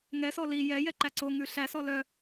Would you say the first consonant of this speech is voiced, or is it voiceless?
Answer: voiced